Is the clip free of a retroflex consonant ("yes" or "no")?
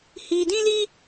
yes